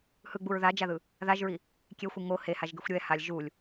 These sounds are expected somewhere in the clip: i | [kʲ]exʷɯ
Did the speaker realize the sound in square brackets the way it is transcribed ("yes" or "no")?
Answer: yes